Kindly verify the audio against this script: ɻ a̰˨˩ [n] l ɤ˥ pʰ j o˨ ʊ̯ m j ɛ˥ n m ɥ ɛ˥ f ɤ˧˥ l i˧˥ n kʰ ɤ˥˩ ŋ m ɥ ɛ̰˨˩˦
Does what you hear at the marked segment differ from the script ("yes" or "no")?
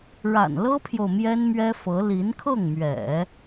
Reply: no